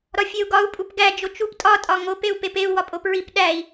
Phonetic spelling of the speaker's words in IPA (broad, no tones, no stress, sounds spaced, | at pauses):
ɾ ɒ fʲ e u̯ ɡ ɒ u̯ pʼ u p ɡ æ d͡ʒ o t͡ʃ u p tʼ ɒ tʼ ɒ ŋ o p e u̯ p e p e u̯ w ɒ pʼ o p ɹ i p ɗ æ i̯